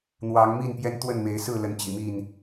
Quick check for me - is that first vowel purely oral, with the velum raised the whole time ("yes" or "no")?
yes